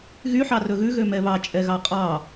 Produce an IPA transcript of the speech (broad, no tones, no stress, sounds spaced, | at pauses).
ɣ y ħ ɑ r ɵ ɣ ʉ ɣ ø m ɛ β ɑ t͡ʃʼ ɛ ɣ ɑ qʼ ɑ